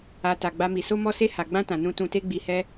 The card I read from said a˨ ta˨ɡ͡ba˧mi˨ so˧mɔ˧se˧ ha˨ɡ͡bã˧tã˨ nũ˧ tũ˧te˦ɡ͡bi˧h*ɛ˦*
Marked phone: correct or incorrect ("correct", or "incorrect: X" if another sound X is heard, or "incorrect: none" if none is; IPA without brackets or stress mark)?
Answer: correct